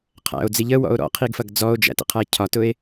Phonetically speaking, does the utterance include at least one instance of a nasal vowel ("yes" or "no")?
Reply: no